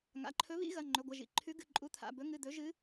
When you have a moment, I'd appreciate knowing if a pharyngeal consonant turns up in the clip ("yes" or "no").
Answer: no